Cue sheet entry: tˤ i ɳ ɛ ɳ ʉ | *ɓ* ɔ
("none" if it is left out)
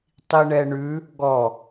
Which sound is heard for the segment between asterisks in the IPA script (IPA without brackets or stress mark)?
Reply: ɡ